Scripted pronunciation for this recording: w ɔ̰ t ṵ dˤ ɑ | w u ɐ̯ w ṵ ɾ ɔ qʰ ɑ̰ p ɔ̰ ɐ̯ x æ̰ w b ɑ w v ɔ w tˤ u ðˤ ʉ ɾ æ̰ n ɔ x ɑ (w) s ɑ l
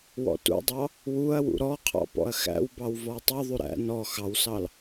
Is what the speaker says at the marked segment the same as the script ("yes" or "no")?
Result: yes